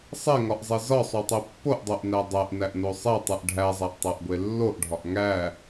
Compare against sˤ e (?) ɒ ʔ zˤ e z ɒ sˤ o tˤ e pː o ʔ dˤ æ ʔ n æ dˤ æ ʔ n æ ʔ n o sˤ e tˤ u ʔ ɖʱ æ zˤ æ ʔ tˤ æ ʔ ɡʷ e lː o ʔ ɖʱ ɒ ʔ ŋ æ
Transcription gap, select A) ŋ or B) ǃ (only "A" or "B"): A